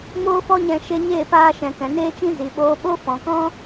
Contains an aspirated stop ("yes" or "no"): no